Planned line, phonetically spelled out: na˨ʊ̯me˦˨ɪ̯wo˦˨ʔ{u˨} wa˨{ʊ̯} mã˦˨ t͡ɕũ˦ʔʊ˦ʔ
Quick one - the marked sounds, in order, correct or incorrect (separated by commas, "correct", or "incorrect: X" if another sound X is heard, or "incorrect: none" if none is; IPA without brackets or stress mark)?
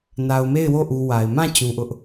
correct, incorrect: ɪ̯